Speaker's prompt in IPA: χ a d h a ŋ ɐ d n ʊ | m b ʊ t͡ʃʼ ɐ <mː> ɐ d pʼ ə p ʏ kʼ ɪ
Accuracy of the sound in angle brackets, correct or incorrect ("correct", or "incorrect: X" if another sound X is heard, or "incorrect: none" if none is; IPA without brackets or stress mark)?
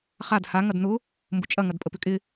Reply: incorrect: ŋ